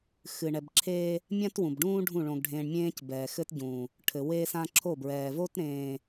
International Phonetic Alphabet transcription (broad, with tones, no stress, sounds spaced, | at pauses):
x ɨ˨ ɳ ɛ˨ b ǁʰ eː˦ | mʲ ã˦ t w ũ˨ b ɖ ũː˦ ɖʱ ũ˦˨ ɭ õ˨ ɡ ɖʱ ẽː˨ ɳ mʲ ẽː˦ c b ɛː˨ x ɘ˦ t ɟ ũː˨ | ʈʰ ɘ˨ w eː˦ s ã˦ ǁʰ o˦˨ b ɹ ɛː˨ v o˦ t ɾ ẽː˨